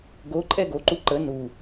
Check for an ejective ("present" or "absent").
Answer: present